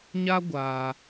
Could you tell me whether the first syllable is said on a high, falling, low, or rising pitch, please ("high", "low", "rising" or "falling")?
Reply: high